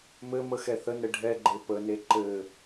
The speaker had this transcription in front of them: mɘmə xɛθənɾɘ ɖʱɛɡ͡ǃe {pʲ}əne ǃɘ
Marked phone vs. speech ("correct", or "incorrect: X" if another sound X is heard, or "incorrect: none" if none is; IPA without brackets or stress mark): incorrect: p